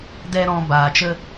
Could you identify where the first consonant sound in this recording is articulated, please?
alveolar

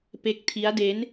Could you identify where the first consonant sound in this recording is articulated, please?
labial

